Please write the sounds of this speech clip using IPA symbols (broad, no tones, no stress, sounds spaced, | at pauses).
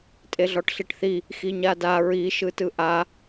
tʼ e ɮ ɔ ʈ ɬ i ʈ θ i | x i ɲ a d a ɹ i ʃ ɯ t ɯ ʔ a